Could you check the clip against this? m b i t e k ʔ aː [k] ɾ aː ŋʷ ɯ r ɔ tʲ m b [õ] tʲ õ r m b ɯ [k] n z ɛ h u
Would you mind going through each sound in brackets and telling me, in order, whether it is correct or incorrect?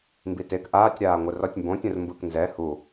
incorrect: tʲ, correct, correct

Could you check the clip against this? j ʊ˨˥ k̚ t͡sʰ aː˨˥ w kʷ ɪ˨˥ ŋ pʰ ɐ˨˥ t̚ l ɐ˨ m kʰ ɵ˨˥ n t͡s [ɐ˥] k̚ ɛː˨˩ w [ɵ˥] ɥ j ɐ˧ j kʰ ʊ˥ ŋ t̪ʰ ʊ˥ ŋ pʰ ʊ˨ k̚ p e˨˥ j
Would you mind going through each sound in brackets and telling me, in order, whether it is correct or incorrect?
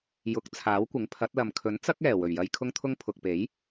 correct, incorrect: ɵ˨˩

